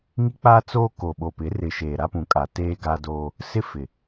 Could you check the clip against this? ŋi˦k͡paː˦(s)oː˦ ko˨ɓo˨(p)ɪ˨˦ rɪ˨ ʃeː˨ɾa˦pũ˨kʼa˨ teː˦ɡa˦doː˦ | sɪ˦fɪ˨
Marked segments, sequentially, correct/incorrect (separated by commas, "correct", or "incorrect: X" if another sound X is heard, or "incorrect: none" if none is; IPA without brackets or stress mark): incorrect: t͡s, correct